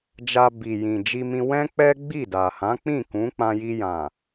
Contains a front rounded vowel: no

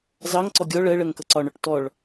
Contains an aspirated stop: no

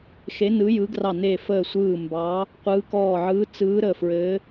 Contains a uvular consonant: yes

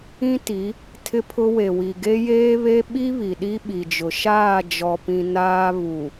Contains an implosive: yes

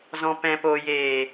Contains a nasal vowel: yes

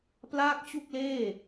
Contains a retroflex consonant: no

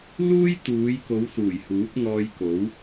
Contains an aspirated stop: no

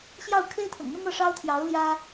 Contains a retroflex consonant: yes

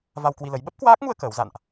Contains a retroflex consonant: no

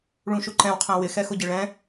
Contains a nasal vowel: yes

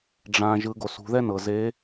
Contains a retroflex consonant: yes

